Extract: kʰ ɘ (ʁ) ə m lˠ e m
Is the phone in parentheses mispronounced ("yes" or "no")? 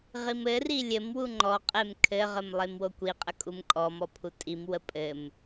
no